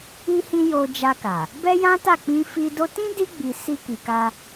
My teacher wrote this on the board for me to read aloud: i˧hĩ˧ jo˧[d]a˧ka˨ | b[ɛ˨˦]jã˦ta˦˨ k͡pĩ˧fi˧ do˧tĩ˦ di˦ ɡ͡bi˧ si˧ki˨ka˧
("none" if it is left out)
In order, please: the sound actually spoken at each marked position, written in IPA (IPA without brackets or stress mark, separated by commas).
d͡ʒ, ɛ˦